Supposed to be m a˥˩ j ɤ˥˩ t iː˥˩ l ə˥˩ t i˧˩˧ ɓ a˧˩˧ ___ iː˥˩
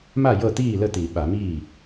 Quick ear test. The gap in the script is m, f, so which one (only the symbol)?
m